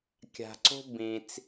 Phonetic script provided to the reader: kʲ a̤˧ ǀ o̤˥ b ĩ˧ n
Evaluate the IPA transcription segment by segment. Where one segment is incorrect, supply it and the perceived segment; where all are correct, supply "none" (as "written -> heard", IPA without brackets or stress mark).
n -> t͡s